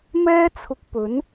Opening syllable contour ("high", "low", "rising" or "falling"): high